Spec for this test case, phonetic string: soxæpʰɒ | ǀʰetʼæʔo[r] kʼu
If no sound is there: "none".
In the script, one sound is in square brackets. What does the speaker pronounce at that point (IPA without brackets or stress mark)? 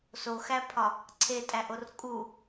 r